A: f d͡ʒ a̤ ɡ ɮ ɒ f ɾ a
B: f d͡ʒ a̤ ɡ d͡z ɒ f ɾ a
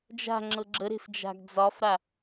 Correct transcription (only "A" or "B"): B